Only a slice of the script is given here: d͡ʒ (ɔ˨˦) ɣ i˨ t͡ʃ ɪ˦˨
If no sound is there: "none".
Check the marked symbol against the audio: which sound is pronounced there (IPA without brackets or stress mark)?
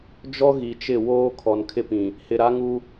ɔ˦